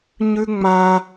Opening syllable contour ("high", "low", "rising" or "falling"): high